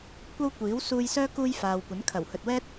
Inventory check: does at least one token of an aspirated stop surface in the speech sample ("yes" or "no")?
yes